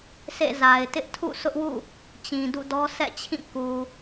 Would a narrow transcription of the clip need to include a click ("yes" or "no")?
no